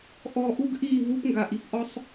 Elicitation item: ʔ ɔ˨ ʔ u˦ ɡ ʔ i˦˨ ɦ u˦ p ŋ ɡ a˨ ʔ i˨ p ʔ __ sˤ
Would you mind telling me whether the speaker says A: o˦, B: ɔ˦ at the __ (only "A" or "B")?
B